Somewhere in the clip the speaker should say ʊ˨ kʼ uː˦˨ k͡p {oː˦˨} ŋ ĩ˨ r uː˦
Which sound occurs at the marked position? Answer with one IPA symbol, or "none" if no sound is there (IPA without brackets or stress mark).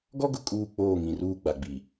oː˦˨